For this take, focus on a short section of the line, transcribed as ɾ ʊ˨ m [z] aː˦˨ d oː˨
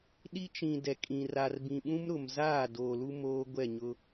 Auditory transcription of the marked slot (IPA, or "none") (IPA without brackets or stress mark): z